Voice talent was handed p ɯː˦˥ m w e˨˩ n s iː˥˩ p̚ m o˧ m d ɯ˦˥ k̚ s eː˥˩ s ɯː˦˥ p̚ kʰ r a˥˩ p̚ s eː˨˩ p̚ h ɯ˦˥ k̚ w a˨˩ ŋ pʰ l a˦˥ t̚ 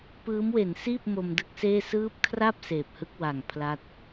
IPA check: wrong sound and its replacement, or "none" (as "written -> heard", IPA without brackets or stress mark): none